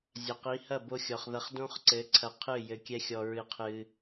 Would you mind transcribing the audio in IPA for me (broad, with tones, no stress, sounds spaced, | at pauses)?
zʲ ɐ˨ q i˨˦ h ɐ˦˨ b o˧ xʲ ɔ˨ χ ð ɐ˧ χ d õ˦ χ ǀ ɘ˨˦ ǀʰ ɐ˧ qʰ ɨ˦˨ j ɘ˧ kʲ ɛ˦ xʲ ɔ˧ ɹ ɨ˧ qʰ ɨ˧